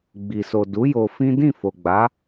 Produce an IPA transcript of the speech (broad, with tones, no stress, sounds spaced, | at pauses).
ɡ͡b i˨ s o˨ d u˨˦ j o˧ f ĩ˦ d ĩ˦˨ f o˨ ɡ͡b a˨˦